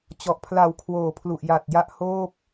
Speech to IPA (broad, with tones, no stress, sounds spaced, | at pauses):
t͡ɕ ɔ˨˩ ʔ pʰ l a˩˦ w kʰ w oː˩˦ pʰ l u˨˩ ʔ j a˨˩ t̚ j a˥˩ ʔ h oː˥˩ p̚